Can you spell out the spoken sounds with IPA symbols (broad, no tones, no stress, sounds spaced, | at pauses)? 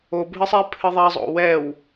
o bʱ ɨ sˤ e pʰ ɨ ðˤ ɛ zˤ o̰ w ɛ w